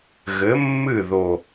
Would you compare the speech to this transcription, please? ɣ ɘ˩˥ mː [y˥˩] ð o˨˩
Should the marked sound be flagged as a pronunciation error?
yes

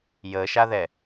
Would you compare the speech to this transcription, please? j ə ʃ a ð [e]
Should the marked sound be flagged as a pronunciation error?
yes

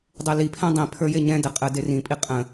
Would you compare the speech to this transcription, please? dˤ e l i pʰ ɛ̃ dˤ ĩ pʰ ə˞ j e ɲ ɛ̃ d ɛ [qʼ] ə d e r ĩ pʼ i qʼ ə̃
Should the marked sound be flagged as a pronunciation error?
no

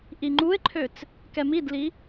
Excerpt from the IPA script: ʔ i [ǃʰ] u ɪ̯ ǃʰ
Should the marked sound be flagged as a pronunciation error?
yes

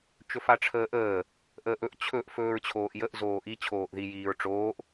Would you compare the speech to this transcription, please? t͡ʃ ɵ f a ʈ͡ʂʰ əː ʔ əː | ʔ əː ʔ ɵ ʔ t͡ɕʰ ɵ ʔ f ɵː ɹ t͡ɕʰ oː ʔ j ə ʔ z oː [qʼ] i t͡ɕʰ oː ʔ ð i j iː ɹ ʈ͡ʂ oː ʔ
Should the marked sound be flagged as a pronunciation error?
yes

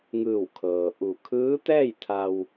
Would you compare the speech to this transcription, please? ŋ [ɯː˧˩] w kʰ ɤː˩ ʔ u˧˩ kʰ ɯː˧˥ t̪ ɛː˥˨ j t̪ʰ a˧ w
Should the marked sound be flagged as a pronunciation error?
no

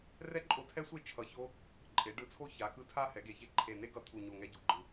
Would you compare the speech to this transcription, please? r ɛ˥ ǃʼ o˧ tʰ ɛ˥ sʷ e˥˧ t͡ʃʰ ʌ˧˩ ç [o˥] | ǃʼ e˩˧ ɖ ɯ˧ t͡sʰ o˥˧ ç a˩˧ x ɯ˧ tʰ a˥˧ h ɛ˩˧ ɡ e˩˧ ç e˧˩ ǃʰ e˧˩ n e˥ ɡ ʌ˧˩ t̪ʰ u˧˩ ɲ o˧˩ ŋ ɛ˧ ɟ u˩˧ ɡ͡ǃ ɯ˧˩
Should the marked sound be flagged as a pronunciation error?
no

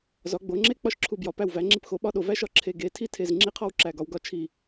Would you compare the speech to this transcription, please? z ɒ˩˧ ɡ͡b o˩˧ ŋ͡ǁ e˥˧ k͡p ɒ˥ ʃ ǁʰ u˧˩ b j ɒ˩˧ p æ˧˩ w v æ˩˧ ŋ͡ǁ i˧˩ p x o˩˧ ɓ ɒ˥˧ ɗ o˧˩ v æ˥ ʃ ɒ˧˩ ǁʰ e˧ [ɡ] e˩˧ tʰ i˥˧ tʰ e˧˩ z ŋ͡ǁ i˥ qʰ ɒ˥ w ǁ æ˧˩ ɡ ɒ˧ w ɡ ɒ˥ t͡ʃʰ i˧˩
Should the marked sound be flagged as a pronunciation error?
no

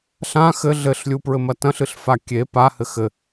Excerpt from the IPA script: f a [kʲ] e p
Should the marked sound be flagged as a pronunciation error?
no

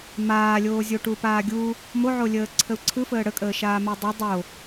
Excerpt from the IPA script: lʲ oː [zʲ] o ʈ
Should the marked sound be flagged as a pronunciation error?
no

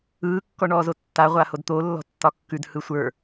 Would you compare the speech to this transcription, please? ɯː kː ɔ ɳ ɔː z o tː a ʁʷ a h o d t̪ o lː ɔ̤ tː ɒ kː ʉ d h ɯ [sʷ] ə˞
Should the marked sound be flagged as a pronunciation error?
no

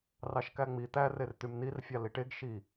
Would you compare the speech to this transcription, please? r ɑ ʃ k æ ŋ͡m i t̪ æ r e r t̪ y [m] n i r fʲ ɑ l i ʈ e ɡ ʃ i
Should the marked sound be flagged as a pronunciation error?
no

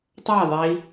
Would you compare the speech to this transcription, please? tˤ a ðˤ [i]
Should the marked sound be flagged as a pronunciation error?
no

